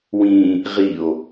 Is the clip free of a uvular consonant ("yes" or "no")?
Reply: no